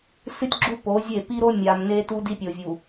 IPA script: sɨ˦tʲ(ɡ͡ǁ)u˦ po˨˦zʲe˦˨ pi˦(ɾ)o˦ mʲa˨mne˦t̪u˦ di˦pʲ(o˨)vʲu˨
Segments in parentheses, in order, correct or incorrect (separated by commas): correct, correct, correct